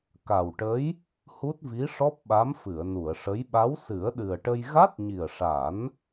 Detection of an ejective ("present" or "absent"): absent